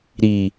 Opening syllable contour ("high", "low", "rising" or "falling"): low